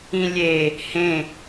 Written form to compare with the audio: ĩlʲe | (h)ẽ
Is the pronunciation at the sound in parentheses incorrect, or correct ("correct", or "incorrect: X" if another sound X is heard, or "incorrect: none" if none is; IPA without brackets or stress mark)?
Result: correct